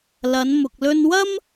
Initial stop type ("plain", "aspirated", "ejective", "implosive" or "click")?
plain